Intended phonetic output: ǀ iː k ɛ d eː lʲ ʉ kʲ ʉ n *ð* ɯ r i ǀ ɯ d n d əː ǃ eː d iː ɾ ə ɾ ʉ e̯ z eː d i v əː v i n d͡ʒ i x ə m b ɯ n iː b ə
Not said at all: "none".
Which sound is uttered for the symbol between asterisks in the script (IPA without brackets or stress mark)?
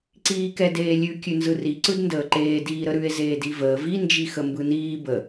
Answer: z